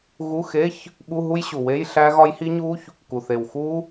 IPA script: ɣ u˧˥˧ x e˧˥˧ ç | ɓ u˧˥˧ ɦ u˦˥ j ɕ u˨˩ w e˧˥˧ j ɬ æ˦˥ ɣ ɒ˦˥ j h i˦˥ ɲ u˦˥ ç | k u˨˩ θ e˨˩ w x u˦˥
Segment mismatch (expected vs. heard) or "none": none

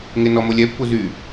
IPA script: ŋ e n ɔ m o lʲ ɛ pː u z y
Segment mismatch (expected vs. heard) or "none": none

